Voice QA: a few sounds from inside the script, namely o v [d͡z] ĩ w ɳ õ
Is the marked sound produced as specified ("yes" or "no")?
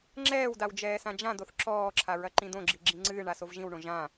no